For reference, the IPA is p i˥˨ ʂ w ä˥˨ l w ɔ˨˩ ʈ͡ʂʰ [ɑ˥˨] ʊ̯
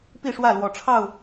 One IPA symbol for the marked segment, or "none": ɑ˥˨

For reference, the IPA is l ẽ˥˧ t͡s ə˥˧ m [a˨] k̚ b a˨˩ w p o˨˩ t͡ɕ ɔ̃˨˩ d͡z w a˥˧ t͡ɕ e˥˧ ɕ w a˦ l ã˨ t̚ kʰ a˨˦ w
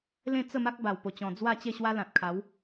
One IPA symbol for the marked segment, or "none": a˦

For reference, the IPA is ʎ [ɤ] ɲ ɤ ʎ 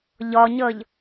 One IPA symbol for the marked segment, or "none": ɔ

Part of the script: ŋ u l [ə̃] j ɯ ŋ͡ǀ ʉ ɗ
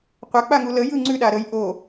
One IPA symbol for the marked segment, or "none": ə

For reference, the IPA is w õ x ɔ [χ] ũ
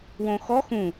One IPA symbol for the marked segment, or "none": x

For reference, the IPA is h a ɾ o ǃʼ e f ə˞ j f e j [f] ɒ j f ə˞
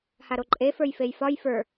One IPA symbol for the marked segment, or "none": f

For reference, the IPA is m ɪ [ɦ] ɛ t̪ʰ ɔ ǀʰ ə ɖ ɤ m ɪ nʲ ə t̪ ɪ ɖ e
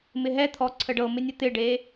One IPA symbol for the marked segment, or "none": ɦ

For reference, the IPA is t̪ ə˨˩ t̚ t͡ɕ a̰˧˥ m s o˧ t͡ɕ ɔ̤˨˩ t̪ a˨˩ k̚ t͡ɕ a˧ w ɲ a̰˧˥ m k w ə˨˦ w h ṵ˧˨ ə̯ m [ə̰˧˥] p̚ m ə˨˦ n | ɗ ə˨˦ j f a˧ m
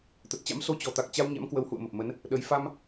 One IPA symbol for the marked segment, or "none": ə˨˩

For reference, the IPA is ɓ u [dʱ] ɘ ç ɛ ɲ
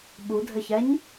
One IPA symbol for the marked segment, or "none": dʱ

